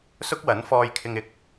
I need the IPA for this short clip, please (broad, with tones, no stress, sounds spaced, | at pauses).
s ʊ˥ k̚ w ɐ˨˥ n f ɔː˧ j kʰ ɪ˧ ŋ ɪ˨˥ k̚